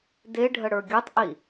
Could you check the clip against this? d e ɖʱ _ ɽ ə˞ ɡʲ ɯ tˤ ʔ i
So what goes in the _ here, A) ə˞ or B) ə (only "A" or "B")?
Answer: B